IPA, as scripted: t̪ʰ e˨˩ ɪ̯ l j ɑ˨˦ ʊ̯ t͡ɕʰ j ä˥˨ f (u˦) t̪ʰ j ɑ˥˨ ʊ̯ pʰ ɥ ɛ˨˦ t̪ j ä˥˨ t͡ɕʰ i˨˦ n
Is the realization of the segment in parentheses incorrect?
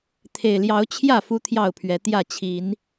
no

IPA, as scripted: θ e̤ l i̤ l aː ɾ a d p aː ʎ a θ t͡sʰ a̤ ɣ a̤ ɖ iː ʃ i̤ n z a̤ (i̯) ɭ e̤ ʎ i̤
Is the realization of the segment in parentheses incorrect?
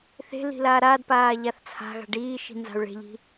yes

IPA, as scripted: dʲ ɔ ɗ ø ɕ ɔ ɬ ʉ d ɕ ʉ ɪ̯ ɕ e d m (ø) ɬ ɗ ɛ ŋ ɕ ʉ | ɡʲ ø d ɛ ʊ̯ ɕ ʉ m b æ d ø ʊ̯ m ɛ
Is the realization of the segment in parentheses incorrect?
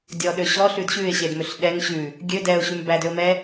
no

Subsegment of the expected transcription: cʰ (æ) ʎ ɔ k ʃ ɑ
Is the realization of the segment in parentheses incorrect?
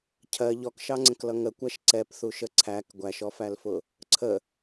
yes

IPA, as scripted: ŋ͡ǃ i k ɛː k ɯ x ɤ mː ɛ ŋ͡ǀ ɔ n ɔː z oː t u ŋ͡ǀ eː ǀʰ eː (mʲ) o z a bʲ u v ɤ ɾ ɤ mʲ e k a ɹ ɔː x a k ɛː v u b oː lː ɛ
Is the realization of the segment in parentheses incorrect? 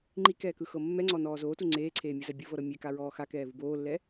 no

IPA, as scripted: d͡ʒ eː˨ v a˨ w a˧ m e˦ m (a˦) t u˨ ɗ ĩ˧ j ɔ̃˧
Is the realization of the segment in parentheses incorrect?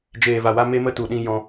yes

